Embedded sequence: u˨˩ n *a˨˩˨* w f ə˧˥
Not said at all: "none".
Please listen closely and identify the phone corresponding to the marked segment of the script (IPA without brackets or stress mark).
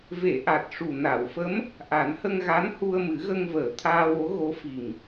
a˨˩˨